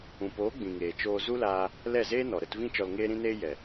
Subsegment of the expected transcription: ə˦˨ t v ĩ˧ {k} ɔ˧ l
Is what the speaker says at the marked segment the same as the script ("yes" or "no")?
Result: no